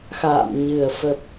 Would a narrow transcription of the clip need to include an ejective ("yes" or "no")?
no